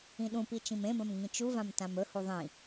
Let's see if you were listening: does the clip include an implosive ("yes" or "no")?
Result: yes